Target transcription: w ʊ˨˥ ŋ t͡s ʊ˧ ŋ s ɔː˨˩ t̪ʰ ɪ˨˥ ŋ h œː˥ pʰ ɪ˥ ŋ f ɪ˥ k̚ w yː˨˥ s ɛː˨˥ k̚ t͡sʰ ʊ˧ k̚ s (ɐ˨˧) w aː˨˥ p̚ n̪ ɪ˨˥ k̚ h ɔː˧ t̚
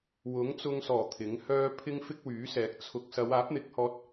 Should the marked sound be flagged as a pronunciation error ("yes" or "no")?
no